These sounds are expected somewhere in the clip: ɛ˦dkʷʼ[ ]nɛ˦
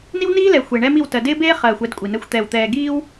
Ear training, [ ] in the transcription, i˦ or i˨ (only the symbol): i˨